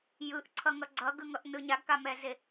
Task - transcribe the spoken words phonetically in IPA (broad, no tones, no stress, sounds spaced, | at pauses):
j ɯ ʔ ǀʰ ʌ ŋ ʌ ɡ͡ǀ ʌ ɡ ɯ ŋ ʌ ʔ n ɯ ɲ a ɡ k a m ɛ z e